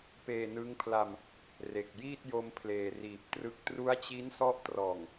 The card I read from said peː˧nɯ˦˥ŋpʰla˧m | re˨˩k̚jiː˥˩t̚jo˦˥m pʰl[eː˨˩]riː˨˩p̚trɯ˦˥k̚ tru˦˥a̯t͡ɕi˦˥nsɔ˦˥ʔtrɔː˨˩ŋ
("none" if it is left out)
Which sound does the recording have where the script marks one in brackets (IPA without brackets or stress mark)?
eː˨˩